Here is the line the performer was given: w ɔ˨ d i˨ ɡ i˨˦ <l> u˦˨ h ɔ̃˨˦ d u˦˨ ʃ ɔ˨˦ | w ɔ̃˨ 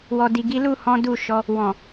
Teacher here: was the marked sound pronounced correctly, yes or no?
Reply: yes